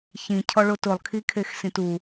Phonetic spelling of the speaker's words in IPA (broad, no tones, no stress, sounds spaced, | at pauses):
ç ĩ cʰ ɔ ɭ o t ʊ lˠ kʰ i kʰ e x s ĩ t u